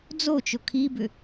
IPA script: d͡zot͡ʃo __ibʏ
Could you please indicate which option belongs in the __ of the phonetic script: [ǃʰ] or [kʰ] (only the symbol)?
kʰ